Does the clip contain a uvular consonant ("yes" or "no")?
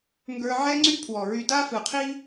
yes